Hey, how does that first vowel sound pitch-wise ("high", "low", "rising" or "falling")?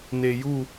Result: low